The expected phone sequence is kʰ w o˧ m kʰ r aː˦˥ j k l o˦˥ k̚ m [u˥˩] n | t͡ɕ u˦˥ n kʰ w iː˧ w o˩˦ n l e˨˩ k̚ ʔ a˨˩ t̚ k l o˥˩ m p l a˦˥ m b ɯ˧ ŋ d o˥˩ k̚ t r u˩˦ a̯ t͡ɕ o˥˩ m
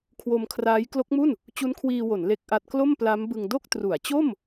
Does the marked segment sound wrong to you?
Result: no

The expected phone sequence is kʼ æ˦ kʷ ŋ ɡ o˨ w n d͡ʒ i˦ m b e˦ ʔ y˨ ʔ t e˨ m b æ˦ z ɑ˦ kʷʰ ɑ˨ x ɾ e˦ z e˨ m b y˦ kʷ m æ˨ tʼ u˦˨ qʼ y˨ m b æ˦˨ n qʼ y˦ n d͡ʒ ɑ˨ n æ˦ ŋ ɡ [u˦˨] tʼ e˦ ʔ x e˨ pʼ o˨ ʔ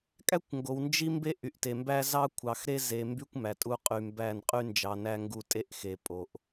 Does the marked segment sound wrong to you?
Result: no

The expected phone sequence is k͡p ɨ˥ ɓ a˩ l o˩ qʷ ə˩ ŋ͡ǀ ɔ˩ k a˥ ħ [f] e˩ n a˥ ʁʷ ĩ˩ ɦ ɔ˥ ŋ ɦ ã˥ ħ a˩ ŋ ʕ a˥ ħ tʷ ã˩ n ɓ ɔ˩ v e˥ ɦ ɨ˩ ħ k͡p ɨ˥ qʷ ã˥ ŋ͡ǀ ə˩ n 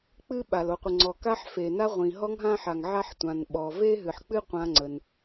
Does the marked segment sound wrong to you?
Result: no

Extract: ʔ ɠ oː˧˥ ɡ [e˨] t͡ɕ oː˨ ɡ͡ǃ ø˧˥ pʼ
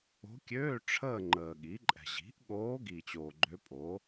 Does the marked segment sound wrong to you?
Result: yes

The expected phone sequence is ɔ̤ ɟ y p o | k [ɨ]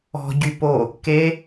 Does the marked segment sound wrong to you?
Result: yes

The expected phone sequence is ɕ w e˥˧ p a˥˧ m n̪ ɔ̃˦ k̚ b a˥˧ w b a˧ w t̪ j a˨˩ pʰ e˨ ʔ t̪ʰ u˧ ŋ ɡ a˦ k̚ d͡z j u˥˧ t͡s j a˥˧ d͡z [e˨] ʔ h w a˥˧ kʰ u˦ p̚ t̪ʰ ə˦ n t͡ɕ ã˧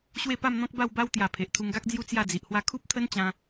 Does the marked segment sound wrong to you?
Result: yes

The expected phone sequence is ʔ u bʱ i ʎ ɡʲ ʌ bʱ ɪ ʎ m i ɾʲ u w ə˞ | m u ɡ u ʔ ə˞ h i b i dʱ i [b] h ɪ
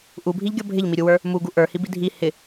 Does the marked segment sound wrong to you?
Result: yes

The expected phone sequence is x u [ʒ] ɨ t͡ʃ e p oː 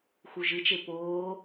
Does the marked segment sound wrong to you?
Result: no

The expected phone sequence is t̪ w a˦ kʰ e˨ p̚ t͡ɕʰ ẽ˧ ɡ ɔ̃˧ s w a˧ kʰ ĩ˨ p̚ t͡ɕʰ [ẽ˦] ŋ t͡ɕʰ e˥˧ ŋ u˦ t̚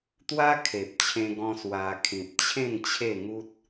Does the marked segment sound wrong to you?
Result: yes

